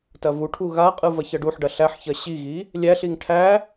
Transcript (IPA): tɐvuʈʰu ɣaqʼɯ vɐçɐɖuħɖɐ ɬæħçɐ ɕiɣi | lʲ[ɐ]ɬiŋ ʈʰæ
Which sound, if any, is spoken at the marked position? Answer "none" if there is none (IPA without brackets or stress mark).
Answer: æ